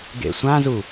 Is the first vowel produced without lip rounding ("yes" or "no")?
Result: yes